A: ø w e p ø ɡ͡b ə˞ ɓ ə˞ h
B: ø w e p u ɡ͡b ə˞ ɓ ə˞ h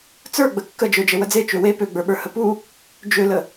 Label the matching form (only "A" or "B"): A